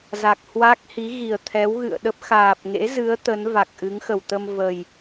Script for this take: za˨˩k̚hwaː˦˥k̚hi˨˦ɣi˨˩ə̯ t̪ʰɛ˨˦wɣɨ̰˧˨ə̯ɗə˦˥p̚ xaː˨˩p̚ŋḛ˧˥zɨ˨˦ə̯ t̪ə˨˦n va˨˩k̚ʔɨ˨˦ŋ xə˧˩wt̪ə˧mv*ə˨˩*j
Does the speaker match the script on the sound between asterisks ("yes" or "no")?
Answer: yes